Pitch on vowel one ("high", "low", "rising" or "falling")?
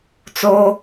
high